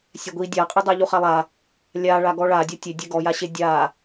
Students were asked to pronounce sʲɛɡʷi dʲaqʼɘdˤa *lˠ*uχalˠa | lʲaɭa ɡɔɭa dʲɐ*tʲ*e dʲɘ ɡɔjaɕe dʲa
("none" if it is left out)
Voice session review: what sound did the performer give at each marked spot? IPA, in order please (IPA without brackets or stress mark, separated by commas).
ʎ, tʲ